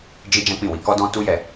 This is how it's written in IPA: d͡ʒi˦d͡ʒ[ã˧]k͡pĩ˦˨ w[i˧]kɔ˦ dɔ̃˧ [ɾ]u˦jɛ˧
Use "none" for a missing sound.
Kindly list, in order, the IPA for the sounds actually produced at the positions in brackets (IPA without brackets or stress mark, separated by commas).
ã˦, i˧, t